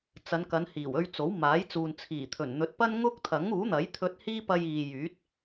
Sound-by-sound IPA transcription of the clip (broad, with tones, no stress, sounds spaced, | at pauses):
t͡s ɐ˨˧ n k ɐ˨˧ n h iː˨˩ w ɵ˧ ɥ t͡s o˨˥ w m aː˨˥ j t͡s uː˨ n t͡sʰ iː˨˩ t̪ʰ ɵ˨˩ n n̪ ɵ˨˥ t̚ p ɐ˥ n ŋ ʊ˥ k̚ t̪ʰ ɐ˨˥ ŋ uː˨˥ n̪ ɐ˨˥ j t̪ʰ ɵ˧ t̚ h iː˥ p ɐ˧ j iː˨ j yː˨˥ t̚